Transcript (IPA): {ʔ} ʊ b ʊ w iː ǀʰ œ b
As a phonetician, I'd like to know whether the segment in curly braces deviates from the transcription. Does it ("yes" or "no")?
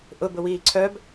no